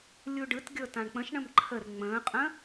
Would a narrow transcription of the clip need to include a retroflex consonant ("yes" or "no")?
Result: yes